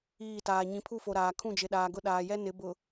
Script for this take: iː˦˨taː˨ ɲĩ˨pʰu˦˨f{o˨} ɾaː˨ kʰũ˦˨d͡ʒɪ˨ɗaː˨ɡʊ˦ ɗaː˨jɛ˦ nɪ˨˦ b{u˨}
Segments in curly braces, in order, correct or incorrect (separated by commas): correct, incorrect